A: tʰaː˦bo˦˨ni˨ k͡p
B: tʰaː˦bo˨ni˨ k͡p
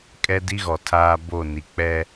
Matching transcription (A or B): A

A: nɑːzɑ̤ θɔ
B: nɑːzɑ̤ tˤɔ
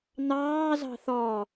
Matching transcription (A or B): A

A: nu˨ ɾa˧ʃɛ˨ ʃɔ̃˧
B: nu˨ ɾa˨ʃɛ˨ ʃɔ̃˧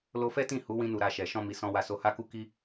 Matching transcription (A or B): A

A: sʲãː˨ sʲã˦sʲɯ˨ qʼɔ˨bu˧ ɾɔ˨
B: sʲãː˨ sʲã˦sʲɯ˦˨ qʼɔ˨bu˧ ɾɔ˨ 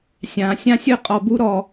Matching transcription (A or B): B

